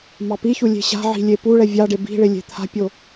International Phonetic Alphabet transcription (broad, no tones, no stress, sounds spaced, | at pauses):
m ɑ p i ç u lʲ e̤ ɕ a̤ ʕ i̤ lʲ e p u ɭ ɛ vʲ ɑ ɖ e b i̤ ɭ e lʲ e̤ t̪ʰ a̤ pʲ o